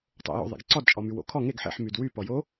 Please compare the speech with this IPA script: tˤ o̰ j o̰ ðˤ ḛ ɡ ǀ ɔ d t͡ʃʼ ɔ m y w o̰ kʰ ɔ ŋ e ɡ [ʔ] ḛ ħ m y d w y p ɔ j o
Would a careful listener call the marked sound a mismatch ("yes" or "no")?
yes